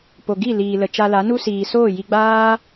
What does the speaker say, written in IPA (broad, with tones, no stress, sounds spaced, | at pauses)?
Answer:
p o˨ ɡ i˦˨ l iː˨ l ə˨ t͡ʃ a˧ l a˨˦ n u˦ s iː˨ s oː˦˨ j i˧ ɡ͡b aː˦